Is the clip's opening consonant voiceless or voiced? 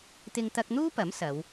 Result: voiceless